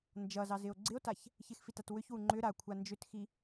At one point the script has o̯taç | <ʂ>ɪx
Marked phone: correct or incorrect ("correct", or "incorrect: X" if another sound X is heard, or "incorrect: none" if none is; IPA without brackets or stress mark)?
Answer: incorrect: ç